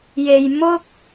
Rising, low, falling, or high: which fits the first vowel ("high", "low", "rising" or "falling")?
low